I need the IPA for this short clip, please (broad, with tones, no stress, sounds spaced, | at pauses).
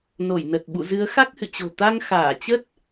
n o˧˩ j n ə˨˩ t̚ ɓ ṵ˧˨ z ɨ˨˦ ə̯ x a˦˥ k̚ h ɨ̰˧˨ t͡ɕ o̤˨˩ t̪ a˧ ŋ x aː˧˩ t͡ɕ ə˦˥ t̚